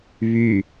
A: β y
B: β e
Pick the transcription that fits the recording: A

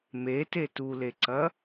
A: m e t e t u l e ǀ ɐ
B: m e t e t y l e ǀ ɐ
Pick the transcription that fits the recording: A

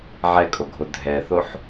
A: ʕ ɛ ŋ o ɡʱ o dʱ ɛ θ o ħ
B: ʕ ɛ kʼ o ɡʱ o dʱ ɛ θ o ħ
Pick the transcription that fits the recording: B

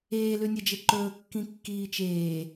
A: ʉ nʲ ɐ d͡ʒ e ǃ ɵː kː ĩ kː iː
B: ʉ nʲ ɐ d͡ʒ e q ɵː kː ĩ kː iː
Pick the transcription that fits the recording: A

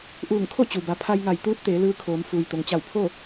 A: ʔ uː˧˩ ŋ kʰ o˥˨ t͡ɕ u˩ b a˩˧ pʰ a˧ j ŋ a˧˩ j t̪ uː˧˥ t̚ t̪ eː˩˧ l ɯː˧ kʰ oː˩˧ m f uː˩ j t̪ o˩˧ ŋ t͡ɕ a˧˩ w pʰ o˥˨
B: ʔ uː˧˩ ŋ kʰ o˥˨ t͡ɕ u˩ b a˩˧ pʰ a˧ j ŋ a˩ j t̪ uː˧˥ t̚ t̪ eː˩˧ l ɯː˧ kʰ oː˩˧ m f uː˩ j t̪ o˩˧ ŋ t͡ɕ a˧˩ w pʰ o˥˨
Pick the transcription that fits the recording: A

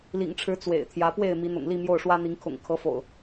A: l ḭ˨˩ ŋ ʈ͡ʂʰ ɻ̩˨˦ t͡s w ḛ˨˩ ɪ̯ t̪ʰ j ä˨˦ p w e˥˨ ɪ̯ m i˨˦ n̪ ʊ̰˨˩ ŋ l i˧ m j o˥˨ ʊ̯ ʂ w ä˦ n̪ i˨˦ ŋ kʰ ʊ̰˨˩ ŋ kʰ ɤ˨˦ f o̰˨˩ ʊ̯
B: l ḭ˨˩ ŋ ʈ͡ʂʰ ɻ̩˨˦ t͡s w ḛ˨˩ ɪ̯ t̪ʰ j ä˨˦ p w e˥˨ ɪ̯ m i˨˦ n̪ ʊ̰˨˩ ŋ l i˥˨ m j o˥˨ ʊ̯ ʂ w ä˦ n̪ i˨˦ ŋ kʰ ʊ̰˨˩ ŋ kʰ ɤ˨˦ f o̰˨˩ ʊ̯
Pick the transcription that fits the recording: B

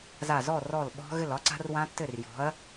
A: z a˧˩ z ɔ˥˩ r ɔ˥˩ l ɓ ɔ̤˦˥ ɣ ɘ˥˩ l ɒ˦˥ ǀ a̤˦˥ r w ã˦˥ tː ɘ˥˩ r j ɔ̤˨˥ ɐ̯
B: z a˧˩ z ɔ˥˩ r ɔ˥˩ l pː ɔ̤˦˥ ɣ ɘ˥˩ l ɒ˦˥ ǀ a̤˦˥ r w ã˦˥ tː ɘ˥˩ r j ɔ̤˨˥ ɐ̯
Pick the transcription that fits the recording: A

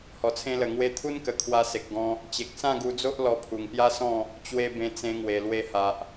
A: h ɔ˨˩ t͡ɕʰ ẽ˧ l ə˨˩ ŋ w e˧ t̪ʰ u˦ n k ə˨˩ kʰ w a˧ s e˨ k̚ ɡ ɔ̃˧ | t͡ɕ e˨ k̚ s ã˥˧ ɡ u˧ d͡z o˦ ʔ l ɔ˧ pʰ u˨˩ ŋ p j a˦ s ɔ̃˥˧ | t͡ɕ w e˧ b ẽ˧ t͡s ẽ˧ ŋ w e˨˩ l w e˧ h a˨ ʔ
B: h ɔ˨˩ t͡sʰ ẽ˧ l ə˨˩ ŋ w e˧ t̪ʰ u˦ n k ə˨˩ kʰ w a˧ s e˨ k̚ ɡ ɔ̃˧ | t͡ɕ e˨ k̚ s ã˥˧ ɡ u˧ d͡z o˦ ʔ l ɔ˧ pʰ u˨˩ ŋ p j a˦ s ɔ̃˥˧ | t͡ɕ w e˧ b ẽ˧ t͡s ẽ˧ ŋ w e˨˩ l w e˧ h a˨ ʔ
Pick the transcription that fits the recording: B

